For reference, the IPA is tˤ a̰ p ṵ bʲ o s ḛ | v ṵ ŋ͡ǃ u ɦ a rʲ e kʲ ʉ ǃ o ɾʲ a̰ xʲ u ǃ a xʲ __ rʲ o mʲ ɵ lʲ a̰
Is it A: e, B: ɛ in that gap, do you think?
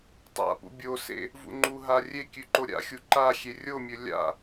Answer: A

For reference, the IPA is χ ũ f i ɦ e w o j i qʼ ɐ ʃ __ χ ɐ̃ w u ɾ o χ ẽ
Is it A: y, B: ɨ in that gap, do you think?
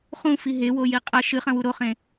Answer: B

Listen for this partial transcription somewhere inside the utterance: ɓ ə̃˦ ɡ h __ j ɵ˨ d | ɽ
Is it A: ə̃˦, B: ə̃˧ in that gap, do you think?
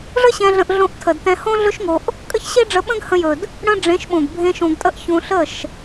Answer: B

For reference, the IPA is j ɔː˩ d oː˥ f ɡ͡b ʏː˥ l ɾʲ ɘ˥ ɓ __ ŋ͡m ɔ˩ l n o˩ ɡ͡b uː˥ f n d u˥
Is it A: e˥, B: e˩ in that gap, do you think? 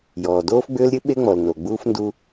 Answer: A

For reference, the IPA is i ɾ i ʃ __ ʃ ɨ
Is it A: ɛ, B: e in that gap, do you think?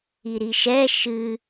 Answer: A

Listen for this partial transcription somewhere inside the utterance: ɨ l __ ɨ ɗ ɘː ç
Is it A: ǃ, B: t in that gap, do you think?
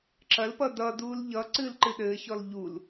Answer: A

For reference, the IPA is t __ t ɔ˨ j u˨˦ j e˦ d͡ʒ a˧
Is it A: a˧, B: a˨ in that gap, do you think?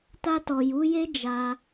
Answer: A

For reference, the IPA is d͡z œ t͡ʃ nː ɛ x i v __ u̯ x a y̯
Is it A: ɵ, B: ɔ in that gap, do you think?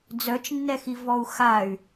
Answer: B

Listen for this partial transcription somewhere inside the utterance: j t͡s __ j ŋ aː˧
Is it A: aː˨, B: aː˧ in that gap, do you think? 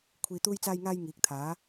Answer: B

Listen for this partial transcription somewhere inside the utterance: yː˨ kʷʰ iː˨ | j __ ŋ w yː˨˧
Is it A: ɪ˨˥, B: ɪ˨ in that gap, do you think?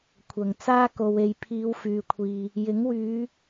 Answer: A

